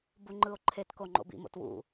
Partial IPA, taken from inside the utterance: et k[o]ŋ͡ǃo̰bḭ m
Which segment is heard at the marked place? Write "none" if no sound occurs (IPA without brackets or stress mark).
o